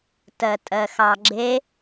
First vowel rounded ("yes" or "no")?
no